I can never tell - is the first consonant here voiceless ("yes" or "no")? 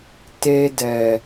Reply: yes